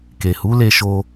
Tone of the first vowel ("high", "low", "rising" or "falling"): low